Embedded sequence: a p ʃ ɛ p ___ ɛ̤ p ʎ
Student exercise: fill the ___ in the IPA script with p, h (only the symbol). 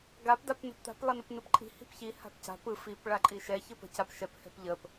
h